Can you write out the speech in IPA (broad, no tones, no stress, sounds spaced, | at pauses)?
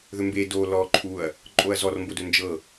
ð ɵ m b e d o l ɔ ǃʰ u ɐ̯ | ǃʼ o ɐ̯ z ɔ r m b o d ɵ n d͡ʒ ɤ